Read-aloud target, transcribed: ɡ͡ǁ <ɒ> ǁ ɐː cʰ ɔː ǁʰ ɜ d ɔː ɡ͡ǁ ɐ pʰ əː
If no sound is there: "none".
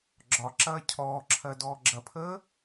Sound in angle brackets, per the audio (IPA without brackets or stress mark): ɒ